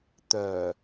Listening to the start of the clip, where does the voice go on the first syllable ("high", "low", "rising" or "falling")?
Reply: low